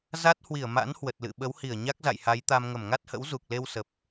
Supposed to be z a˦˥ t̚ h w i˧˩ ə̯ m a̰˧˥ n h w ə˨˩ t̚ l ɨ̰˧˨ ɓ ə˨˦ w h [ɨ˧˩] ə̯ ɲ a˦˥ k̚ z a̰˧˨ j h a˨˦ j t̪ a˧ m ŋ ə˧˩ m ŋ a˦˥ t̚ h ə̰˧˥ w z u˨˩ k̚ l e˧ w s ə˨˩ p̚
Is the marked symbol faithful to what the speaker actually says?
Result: no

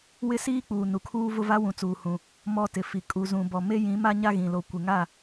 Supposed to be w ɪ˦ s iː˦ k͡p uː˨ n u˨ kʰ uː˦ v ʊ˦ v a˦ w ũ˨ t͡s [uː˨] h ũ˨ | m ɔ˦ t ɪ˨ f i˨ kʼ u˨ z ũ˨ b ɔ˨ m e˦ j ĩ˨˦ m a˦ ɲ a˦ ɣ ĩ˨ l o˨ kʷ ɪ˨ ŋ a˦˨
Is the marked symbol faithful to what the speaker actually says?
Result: yes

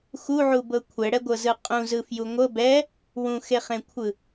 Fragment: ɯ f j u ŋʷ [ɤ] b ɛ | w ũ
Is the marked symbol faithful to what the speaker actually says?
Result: yes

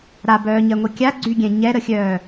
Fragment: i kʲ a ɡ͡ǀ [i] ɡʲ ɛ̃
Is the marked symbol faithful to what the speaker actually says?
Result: no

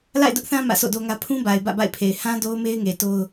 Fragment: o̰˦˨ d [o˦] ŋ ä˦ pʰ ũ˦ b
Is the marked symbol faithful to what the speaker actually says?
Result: yes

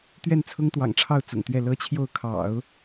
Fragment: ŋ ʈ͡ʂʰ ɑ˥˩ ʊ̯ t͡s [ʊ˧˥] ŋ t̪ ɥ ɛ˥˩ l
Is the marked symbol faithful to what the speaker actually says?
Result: no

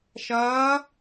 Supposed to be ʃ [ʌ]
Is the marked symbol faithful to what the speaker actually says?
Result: no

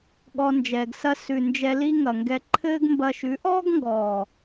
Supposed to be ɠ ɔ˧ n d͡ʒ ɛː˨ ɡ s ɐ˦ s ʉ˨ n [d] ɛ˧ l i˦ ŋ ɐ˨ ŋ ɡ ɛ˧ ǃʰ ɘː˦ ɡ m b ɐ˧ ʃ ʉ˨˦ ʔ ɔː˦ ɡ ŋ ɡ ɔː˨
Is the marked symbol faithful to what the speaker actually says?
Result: no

